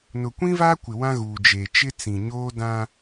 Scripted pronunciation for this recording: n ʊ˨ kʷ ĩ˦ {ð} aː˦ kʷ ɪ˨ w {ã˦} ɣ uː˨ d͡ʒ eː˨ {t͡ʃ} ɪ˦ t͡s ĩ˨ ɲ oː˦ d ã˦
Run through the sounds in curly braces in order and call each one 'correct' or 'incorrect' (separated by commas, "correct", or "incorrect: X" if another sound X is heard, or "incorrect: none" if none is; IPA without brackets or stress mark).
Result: incorrect: v, correct, correct